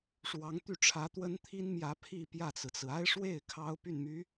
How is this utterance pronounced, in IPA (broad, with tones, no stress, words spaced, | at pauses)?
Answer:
ʂwɑ˧˥ŋt̪y˥˩ʈ͡ʂʰä˧˥ t̪wə˥nt̪ʰi˥nmjä˧˥ pʰi˥˧pjä˥˩t͡sɹ̩˩t͡sɹ̩˩ a˥ɪ̯ʂwe˥˩ɪ̯ kʰɑ˥ʊ̯py˥˩nmy˧˥